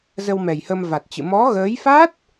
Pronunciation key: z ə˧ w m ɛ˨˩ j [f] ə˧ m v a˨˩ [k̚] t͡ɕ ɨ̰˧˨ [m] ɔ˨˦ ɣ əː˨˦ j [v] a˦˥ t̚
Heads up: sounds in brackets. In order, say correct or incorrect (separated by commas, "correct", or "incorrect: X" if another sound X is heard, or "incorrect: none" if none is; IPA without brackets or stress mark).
incorrect: h, incorrect: t̚, correct, incorrect: f